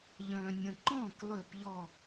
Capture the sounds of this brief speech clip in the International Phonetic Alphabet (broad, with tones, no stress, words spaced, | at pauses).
ʎœ̃ː˨nʲə̃˨ǃɔ̃ː˥˨k lˠø˥˨pʎɔ˥˨